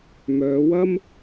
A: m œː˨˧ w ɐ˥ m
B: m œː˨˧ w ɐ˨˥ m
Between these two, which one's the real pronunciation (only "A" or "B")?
A